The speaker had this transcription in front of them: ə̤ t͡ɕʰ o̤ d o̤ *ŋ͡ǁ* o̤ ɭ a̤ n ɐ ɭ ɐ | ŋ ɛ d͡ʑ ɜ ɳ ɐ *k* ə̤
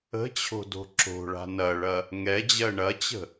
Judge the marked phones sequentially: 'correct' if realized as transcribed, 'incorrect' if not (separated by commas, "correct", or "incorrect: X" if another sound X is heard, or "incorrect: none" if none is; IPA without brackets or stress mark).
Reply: incorrect: ǁ, incorrect: t͡ɕ